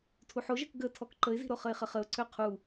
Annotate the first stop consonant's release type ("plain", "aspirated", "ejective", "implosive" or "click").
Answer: aspirated